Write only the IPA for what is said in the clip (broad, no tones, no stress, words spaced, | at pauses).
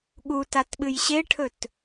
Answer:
ɠutatɓɨj ɕeʈʰɵt